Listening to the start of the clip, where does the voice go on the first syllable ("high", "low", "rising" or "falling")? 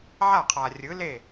falling